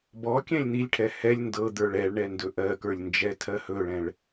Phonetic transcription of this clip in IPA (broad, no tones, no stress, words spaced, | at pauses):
bɔ kʲɛ̃lʲn̪ilʲʈʰɛ hɛlʲ ndɤ d̪ə˞ɭɛɭɳɛ ndɵʔɜkə˞lʲ nd͡ʒɛtʰɜhɵɭɛ̃ɭ